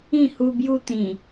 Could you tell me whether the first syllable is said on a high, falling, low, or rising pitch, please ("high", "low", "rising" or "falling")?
falling